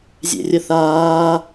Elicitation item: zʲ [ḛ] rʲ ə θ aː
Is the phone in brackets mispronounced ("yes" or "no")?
no